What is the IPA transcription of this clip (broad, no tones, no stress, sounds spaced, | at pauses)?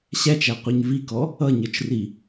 ɕ æ t͡ʃ æ qʷ ɛ ɲ v i k ɔ | ʌ ɲ ə˞ t͡ʃ r i